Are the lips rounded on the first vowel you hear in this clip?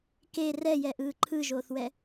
no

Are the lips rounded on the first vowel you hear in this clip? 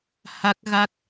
no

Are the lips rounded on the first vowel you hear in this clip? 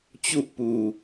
yes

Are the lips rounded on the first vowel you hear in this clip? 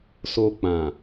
yes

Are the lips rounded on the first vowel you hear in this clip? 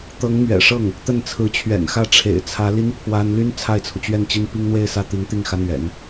no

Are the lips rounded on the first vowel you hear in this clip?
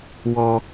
yes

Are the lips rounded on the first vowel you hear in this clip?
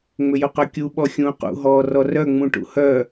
yes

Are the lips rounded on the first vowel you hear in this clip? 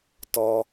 yes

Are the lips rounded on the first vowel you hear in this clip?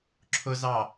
yes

